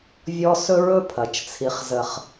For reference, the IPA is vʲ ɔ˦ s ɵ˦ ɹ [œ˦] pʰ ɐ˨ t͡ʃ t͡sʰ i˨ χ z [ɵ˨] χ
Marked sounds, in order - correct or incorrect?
incorrect: ɵ˦, incorrect: ə˨

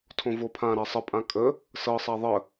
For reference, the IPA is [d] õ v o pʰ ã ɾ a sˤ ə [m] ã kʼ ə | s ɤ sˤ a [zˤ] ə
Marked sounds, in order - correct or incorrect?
incorrect: tʰ, incorrect: pʼ, incorrect: ðˤ

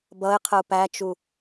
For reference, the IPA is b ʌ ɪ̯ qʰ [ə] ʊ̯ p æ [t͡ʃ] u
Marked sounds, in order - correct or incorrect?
correct, correct

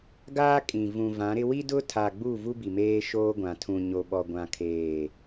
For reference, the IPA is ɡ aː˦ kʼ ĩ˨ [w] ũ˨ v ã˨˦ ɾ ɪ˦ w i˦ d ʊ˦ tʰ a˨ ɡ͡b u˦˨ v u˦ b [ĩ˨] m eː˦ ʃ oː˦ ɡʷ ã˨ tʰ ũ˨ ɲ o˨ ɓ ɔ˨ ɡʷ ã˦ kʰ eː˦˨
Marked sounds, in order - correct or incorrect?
incorrect: v, incorrect: i˨

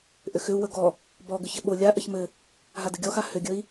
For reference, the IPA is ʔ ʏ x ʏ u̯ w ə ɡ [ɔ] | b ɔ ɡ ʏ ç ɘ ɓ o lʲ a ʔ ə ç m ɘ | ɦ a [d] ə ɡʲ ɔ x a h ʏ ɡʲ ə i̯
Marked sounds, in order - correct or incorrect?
correct, correct

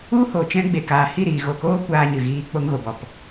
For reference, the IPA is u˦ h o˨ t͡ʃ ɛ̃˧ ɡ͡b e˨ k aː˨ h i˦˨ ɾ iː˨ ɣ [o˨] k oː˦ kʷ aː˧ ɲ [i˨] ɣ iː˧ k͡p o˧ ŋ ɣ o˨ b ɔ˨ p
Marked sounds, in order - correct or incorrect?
correct, incorrect: ɨ˨

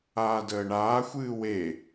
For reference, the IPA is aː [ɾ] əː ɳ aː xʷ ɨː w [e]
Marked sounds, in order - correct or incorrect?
incorrect: d, correct

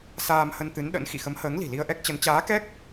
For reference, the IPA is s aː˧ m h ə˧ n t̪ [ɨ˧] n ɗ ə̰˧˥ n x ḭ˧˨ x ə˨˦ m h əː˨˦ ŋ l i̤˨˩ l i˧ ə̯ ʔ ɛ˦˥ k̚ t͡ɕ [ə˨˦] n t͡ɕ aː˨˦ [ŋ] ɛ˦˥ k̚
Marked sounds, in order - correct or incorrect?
incorrect: ɨ˨˦, correct, incorrect: k

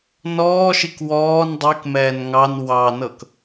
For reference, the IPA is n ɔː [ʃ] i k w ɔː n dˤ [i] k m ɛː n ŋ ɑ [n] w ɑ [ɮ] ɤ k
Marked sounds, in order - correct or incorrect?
correct, correct, correct, incorrect: n

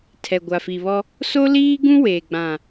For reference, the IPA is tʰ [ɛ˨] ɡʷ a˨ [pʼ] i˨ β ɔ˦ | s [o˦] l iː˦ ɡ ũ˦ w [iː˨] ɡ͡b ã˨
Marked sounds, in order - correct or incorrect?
correct, incorrect: f, correct, incorrect: eː˨

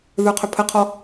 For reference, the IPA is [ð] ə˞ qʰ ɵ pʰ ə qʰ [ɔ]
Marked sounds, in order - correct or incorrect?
correct, correct

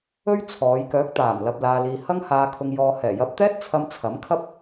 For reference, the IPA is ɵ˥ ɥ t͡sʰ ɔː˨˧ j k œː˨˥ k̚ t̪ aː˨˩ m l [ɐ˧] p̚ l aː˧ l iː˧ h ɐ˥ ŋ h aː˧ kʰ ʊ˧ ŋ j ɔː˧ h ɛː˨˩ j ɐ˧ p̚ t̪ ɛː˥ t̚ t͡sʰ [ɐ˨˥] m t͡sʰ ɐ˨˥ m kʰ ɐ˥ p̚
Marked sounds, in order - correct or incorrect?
correct, incorrect: ɐ˧

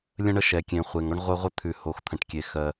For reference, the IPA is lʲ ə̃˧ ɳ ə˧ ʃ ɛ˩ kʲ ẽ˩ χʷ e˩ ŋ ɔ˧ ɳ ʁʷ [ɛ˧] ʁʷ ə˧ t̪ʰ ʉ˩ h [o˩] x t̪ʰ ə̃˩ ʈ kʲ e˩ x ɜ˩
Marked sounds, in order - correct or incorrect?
incorrect: ɜ˧, correct

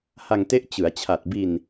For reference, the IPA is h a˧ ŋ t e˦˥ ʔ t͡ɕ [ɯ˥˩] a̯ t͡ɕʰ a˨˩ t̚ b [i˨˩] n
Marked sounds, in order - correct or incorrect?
incorrect: ɯ˩˦, incorrect: i˧

